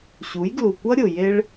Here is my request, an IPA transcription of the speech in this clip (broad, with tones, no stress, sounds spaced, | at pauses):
ɕ u˨˦ j ɡ l u˨ kʷ ʌ˦ ɾʲ ʊ˨ j e˦ ɭ